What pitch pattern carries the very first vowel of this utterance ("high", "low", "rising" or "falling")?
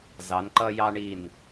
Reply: rising